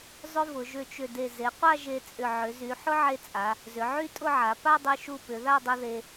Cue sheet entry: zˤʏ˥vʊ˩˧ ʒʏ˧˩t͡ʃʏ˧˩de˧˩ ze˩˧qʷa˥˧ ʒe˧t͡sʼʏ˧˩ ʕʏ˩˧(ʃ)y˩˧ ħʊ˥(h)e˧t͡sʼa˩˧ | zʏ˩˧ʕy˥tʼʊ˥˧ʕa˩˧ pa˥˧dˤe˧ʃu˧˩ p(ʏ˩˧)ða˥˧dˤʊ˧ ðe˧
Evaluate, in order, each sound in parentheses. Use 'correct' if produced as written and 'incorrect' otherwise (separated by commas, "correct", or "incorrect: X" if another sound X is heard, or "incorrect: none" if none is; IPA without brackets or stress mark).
incorrect: z, incorrect: ʕ, correct